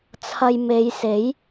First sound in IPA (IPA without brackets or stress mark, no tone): t͡sʰ